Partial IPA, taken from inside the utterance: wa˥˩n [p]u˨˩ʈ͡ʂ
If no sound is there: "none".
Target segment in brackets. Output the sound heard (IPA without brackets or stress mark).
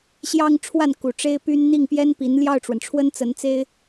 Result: k